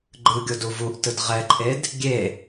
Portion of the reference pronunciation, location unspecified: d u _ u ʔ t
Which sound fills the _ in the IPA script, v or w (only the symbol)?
v